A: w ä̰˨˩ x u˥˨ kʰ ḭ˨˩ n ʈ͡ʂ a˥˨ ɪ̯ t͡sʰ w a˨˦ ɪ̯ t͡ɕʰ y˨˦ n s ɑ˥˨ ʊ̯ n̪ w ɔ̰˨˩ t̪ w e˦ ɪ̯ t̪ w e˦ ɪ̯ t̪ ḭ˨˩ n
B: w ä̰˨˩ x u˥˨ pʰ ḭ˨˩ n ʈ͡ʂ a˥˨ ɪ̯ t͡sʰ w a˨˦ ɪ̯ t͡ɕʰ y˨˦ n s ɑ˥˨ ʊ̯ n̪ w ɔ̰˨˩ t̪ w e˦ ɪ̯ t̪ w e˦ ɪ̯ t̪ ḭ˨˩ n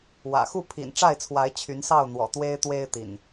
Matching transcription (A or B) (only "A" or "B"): B